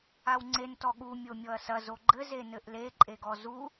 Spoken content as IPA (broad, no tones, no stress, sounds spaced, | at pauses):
a w ŋ͡ǀ e n t ɔ ɠ u mʲ o mʲ ɔ ɐ̯ s ɐ z o ɡ͡ǃ ɘ z e n ɘ ʔ l e ǃʼ e ɡ ɔ z u